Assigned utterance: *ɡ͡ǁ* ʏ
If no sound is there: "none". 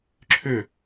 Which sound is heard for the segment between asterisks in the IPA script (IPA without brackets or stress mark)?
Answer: ǁʰ